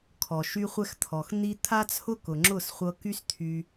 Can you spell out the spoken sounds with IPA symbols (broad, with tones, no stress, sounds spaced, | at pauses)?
kʰ ɔ˨ ʃ y˧ χʷ ɛ˧ x t̪ʰ ɔ˨ x n̪ i˦ t̪ʰ a˦ t͡sʰ ʊ˦ k ʊ˨ ŋ͡ǁ ʊ˦˨ s χʷ ɤ˧ k y˦ s t̪ʰ y˧